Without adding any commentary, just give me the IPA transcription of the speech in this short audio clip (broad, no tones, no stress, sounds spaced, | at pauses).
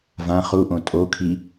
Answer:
v ã χ u ʔ õ tʼ o kʰ i